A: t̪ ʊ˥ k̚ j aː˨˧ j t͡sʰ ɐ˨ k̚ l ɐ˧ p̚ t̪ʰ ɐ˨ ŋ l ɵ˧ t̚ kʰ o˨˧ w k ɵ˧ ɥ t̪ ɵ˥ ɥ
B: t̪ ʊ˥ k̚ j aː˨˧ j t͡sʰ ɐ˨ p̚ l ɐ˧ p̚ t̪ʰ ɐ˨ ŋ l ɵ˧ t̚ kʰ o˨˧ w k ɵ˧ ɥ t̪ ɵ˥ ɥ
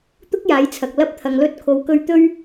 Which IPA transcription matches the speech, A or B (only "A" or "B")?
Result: A